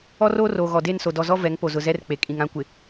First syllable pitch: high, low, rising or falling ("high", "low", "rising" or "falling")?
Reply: high